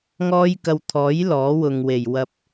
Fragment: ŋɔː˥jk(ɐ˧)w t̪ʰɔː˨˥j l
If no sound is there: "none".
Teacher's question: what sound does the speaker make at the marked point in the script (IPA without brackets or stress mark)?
ɐ˧